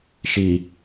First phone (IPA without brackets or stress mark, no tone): ʃ